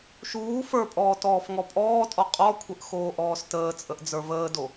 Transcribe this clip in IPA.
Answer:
ʃuː fə˞pʼɔː tɔːfŋɔpʼɔːtʼɔ qʼɔkʷʰəʔ xoːʔɔːstəːt͡sʼəʔ d͡zə˞vəːdo

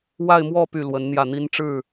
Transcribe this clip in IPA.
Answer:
wa˥˧ɪ̯mwɔ˥˧ py˥˩lwə˧˥nn̪jä˥˩n̪i˥n ʈ͡ʂɻ̩˥˩

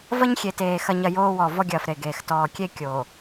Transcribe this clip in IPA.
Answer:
vɐ˦ɲxʲe˨teː˨ xɐ˨ɲɐ˨ joː˦ wɔ˨ vɔ˦ɡʲɐː˨f ɾe˨ɡeː˨x tɔː˨kʲe˦ kʲoː˨

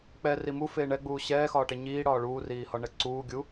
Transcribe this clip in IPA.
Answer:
k͡pɛ rimu feːɳɛɡ͡buː ɕɛːxɒːʈe ɲiː ɽɒːɭuː riːhɒɳɛǀuː ɡʲu

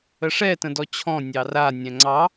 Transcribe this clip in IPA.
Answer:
əʂɛ tə̃dɔt͡ɕʰɔ̃ nʲɑra nʲɛ̃ŋ͡ǀɑ

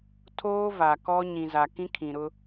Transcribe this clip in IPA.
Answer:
tʰoː˦va˨kɔ˦ ɲĩ˨za˨kĩ˦ kʰĩ˨ɾʊ˦

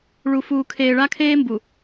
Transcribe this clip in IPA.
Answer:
ɭu˨fuː˨kʰeː˨ ɭa˦kʰeː˦mbu˨

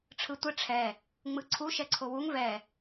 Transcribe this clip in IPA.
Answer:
ʈ͡ʂʰɯtʷɘ ʈ͡ʂʰɛ | ŋ͡mɯǀʰu ʃɛǀʰowuŋ vɛ

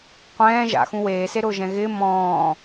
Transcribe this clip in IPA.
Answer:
qʷɛ̃ː ʒa̰xũ weːseɾʊːʒɛ̃ ɣɪː mɔ̃ː

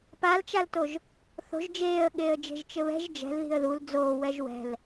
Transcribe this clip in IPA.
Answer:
palt͡ʃaltoʒ | θo̤ʒ d͡ʒeːə̯ɠeːə̯d͡ʒe̤ʒ t͡ʃɘβɛ̤ʒ d͡ʒɛ̤lði̤ə̯ ðul d͡zoː wɛʒwɛ̤l

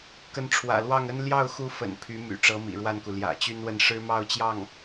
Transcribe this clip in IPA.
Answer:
kə˧˥nʈ͡ʂʰwä̰˨˩lwɑ˥˩ŋə˥n ljɑ˥˩ʊ̯xu˧˥ fə̰˨˩n pʰy˧˥my̰˨˩ ʈ͡ʂɤ˧˥mḭ˨˩ɻwa˥˩nku˩ ljä̰˨˩t͡ɕy˥nwə˥˩n ʂɻ̩˥mɑ˥˧ʊ̯t͡ɕjɑ˥˩ŋ

